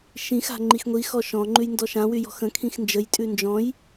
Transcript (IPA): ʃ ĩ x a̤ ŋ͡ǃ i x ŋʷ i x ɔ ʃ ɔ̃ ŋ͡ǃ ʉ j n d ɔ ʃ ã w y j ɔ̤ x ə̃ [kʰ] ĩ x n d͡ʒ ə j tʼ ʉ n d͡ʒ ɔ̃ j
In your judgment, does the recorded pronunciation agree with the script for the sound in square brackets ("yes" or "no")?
yes